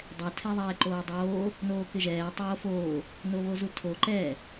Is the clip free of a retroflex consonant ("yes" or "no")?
yes